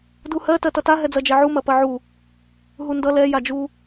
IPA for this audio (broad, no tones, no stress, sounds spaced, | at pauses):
d u h ɜ t ɜ t ʌ t a ɦ ɛ d͡z ɜ d͡ʒ ɛ ʕ u m ɐ p ɐ ʕ u | ɦ u n d ʌ l ɛ j a d͡ʒ u